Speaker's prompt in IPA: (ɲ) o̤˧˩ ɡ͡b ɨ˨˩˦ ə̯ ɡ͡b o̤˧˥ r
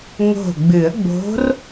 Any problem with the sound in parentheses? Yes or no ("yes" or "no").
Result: yes